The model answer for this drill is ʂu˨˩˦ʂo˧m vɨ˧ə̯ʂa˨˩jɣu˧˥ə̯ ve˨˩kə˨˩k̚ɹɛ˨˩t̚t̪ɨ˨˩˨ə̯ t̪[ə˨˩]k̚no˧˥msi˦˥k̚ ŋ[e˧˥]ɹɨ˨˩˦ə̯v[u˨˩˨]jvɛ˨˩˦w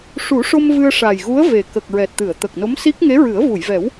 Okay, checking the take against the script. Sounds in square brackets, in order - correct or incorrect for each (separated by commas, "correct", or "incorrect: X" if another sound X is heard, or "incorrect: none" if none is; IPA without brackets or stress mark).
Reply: correct, correct, correct